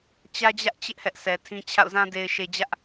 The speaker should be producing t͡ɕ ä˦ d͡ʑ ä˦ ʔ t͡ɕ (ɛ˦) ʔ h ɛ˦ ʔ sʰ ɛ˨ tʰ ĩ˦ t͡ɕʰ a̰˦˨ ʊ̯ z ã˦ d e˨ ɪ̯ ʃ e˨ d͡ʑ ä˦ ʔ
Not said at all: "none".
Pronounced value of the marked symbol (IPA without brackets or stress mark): ɪ˦